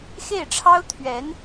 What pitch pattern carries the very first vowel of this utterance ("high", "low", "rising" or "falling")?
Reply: falling